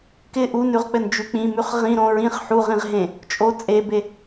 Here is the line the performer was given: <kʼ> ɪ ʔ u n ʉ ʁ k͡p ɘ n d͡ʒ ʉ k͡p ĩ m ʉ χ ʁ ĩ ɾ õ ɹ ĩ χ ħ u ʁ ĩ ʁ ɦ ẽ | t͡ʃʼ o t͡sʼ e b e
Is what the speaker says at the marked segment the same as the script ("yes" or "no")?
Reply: no